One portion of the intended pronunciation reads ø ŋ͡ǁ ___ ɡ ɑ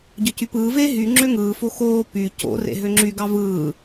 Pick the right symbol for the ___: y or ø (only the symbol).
y